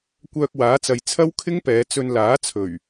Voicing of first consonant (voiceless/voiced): voiceless